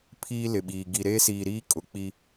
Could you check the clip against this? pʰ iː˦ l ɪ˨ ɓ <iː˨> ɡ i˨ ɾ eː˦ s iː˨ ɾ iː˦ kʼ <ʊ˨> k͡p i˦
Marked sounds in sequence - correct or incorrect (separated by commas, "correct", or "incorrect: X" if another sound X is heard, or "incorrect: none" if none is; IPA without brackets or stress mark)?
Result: correct, correct